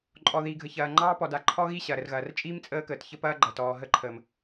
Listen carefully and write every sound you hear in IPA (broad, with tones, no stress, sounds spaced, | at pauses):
ǃʼ ɔ˨ ð iː˨ ɡʱ ə˨ ç ɐː˨ ŋ͡ǃ ɑː˦ p ɔ˨ d a˨ ǃʰ ɔ˦ ɣ i˦˨ ɕ ɐː˨ ɾ ə˨ r ɣ ɐː˨ r t͡ʃʼ iː˦ m t͡sʼ əː˦ k əː˨ t ç ə˦ p ɐː˦ ɡ͡ǃ ɐː˨ t ɔː˨ ɦ ə˦˨ ǃʰ əː˨ m